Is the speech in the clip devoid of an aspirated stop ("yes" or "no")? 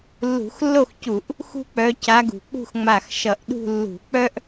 yes